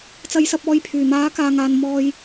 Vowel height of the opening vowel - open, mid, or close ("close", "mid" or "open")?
open